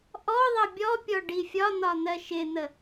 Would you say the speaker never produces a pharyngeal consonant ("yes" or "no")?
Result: yes